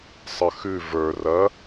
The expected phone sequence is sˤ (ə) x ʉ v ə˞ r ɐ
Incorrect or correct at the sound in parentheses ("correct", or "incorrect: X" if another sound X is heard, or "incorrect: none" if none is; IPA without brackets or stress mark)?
correct